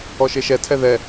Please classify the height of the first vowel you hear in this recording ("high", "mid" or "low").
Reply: mid